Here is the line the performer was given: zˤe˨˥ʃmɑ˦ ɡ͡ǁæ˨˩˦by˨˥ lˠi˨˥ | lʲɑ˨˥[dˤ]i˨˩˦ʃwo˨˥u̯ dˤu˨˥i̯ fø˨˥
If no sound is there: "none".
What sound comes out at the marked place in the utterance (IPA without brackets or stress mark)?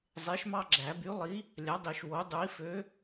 dˤ